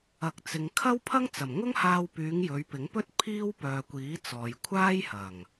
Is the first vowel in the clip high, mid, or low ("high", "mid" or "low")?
low